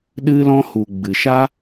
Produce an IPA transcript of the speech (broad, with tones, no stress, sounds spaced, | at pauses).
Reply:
ɗ ɨ˧ l ɔ̃˧ h u˨ ɡ͡b ɨ˨ ʃ a˦